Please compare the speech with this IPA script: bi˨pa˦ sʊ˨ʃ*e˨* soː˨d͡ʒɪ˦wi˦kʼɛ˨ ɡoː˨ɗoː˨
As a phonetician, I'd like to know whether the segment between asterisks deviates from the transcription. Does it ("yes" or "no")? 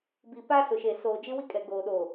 no